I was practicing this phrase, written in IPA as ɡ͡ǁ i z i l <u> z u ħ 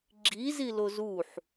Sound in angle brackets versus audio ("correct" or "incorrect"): incorrect